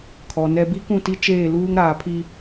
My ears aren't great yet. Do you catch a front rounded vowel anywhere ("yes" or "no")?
no